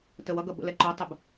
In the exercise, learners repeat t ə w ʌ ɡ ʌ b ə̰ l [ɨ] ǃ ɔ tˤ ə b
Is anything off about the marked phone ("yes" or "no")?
yes